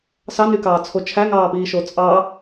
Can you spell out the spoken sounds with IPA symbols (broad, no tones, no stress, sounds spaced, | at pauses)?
s ɑ n y k ɑː t͡sʰ o t͡ʃʰ æ ŋ ɑː p iː ʃ o t͡sʼ ɑ